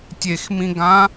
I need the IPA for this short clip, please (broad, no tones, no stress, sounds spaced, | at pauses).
tʲ e x m ĩ ɡ ã